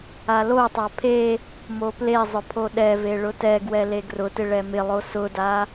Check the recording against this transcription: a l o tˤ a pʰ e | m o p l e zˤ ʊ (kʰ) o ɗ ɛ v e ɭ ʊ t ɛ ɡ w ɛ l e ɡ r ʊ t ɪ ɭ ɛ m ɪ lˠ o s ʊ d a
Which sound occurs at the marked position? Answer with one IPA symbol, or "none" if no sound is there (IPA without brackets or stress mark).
pʰ